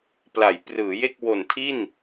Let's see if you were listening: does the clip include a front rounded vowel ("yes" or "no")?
no